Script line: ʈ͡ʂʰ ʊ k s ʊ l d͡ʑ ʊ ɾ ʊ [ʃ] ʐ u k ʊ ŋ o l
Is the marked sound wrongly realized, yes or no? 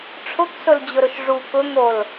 no